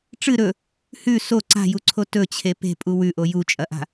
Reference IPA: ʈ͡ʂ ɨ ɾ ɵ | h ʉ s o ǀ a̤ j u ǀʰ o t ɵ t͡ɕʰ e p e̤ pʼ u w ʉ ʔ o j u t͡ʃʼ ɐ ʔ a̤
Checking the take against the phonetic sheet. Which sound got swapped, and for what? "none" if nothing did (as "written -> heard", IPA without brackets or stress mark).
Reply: none